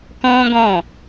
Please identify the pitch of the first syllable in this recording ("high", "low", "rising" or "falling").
high